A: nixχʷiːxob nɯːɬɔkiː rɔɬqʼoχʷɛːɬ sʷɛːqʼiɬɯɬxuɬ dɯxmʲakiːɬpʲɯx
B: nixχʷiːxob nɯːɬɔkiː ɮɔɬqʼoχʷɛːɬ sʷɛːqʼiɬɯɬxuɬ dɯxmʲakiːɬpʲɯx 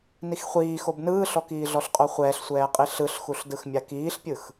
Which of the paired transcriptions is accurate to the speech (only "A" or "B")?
B